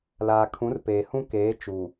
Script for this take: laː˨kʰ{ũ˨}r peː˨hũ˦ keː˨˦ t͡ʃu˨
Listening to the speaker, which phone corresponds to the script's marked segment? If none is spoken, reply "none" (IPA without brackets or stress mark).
ũ˨˦